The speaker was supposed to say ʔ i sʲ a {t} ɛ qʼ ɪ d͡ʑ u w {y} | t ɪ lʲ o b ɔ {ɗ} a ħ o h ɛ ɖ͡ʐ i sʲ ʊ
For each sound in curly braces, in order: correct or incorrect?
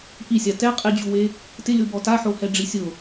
correct, incorrect: e, incorrect: t

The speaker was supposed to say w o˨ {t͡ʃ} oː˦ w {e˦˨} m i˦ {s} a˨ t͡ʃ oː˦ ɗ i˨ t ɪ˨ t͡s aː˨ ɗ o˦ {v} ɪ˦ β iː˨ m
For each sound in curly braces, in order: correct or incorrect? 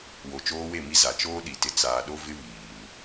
correct, correct, incorrect: z, correct

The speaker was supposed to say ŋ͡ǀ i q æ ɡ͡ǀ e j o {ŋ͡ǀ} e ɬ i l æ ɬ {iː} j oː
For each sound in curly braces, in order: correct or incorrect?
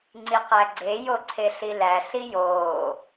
incorrect: ǀʰ, incorrect: i

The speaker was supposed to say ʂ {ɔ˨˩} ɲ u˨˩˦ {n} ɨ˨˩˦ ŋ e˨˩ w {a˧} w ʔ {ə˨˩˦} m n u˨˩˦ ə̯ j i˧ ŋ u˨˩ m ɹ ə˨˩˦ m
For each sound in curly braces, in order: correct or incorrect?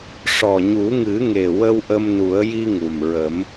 correct, incorrect: ŋ, incorrect: ə˧, incorrect: ə˧

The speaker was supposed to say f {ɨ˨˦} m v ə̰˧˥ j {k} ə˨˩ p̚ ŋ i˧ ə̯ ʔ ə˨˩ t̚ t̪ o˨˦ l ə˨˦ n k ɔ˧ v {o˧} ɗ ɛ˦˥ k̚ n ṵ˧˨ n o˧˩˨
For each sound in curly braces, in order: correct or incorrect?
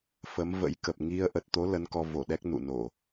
incorrect: ə˨˦, correct, incorrect: o˧˩

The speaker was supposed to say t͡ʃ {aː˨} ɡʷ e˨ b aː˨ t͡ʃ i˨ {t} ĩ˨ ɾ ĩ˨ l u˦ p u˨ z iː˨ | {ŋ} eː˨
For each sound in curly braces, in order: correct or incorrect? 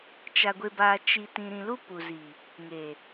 incorrect: a˨, correct, correct

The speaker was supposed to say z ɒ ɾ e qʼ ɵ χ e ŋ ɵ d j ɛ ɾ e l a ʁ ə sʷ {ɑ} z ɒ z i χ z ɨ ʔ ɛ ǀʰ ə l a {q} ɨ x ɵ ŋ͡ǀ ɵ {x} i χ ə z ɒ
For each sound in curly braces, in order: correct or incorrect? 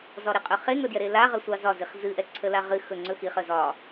correct, incorrect: ʁ, correct

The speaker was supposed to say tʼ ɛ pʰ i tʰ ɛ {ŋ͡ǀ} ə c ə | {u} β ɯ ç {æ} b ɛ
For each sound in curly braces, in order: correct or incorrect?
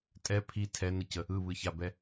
incorrect: n, incorrect: ɯ, incorrect: a

